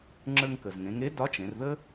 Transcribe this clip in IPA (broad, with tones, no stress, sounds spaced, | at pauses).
ŋ͡ǁ ə˞˧ ŋ k ə˩ z ŋ ẽ˩˧ ŋ e˧˥ d ɒ˧˥ t͡ʃ ẽ˩˧ r ð ə˥